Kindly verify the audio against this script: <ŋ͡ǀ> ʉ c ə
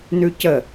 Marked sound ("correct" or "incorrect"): incorrect